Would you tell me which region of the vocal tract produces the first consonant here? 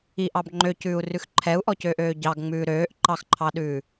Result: throat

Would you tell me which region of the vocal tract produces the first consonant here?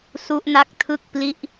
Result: tongue tip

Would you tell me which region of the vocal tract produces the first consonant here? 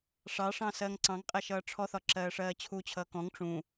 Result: retroflex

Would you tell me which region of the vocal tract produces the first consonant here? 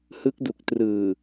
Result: throat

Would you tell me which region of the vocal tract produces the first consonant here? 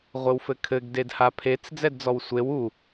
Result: uvula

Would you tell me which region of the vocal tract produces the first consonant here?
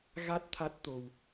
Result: velum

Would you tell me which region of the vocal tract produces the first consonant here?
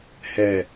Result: throat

